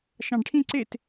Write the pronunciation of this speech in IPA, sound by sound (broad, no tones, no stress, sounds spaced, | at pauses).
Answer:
ʃ ɑ̃ ɖ ʈʰ ĩ ǀ e t